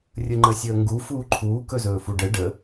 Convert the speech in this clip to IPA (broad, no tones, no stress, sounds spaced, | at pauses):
rʲ ə ŋ͡ǃ ə sʲ əː ŋ ɡ u f uː ǃʰ uː k ɵ z ɵː f u ɖ ə ɖ ə